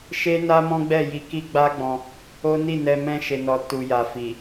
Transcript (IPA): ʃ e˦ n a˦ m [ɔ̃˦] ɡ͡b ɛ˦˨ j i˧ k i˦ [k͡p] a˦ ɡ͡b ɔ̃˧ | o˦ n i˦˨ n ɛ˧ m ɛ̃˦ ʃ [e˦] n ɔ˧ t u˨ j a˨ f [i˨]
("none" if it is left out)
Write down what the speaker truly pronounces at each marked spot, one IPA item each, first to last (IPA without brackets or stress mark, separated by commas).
ɔ̃˦, ɡ͡b, e˧, i˨